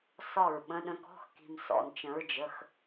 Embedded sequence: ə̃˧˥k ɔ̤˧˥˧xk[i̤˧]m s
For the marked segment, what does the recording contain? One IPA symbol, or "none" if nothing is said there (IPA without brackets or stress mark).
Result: i̤˧